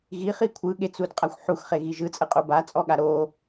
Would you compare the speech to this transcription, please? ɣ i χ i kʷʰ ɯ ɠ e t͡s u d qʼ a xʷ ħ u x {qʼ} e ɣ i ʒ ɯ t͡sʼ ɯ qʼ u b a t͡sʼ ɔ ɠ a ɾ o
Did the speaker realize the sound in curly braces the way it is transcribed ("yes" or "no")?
no